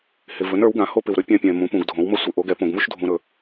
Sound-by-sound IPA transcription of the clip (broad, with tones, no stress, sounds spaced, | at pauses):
h ɪ˨ v ɵ˩˥ n ə˞˩˥ w ɡ ã˩˥ h o˥ p ɪ˨ w ɾ ɵ˥ pʲ ã˥ pʲ ɛ̃˨ m ũ˩˥ p ũ˨ ɡ dʱ õ˩˥ w m ə˥ sʷ ə˩˥ ʔ o˩˥ ɡ ɛ˩˥ p õ˨ ɡ m u˥ ʃ dʱ ũ˨ ɾ ɵ˨